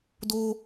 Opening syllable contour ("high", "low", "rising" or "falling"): high